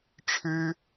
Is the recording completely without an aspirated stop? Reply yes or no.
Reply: no